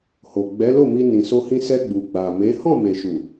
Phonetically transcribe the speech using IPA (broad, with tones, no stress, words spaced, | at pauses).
ho˨ɡ͡bɛ˨˦lo˦˨mi˧ nĩ˨so˧hĩ˧ sɛ˧ɡ͡bu˨ ɡ͡ba˨me˨˦ hɔ̃˦˨me˨ʃu˨